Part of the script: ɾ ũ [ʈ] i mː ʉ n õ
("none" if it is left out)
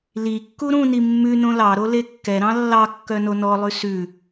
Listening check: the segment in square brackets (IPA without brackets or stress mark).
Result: n